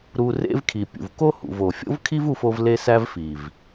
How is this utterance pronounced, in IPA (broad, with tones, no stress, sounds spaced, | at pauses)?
ɾ u˧ r ḛ˦ v kʰ i˨ pʲ ṵ˨ v k o˦ h ṵ˨ v o˨ fʲ o̰˦ v kʰ i˦ v u˦ f o˦ v l e˦ s æ˦ v f i˨ v